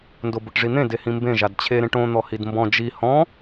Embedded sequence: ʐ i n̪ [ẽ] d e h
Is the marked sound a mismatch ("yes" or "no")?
no